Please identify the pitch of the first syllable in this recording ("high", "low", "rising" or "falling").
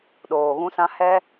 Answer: low